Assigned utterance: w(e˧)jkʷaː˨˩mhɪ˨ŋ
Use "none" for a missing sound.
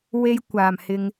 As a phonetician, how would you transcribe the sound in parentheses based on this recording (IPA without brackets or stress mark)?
e˧